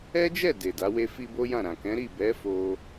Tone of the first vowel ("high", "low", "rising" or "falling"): high